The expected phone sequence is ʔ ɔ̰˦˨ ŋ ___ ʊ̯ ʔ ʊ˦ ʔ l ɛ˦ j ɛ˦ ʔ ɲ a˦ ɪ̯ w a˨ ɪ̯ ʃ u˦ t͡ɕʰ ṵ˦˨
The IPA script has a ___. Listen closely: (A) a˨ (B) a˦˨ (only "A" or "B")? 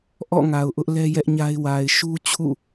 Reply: A